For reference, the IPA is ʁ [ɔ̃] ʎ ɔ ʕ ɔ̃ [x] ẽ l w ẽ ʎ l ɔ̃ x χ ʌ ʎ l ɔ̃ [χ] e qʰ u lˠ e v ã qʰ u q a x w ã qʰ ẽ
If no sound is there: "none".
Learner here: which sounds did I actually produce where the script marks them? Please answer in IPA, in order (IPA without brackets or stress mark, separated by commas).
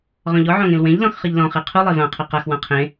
ɔ̃, ŋ, χ